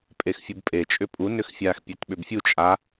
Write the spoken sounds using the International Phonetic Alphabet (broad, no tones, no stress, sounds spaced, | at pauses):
pʼ e x fʲ u b pʼ e t͡ʃʼ ʏ pʼ u n ʏ x fʲ a x pʲ e t ɓ ʏ b fʲ u t͡ʃʼ a